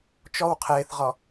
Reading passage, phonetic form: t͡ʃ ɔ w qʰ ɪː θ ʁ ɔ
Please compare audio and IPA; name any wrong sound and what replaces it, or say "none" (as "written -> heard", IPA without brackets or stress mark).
none